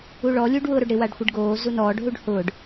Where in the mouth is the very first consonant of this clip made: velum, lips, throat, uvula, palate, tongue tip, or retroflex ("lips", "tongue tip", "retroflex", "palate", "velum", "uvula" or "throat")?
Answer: retroflex